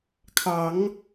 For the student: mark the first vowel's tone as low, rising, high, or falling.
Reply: rising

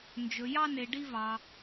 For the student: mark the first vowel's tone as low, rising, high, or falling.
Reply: low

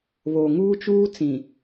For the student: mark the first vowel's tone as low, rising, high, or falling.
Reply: low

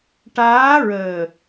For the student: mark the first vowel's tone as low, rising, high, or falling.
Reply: rising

